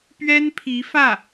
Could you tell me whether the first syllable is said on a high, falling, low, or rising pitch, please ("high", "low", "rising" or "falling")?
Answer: high